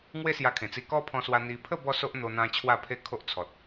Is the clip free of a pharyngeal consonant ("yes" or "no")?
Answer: yes